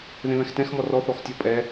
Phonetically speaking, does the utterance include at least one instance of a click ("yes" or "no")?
no